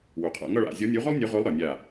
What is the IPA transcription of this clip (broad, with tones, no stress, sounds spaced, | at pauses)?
w u˩ qʰ a̰˧˩ ŋ ʌ˥˨ ɭ a̰˧˩ zʲ ɔ˨˥ nʲ u˨˥ ʁ ɵ˥ lˠ nʲ ɵ˨˥ ʁ ɵ˨˥ lˠ ɾ ɒ˩ nʲ a˧˩